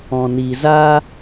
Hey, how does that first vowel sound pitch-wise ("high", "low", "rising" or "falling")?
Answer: low